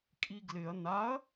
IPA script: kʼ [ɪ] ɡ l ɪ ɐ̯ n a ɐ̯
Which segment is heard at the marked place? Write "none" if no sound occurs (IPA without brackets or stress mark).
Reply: i